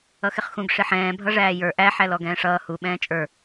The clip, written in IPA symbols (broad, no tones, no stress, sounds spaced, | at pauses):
ʌ x ɪ χ x ũ ɡ ʂ ɪ ħ ɛ̃ː bʱ ʌ ʐ æː j ə˞ ʔ æ ħ æ l ɔ ɡ ɛ̃ː ʂ ʌː h u ɓ ɛ̃ː t͡ʃʼ ə˞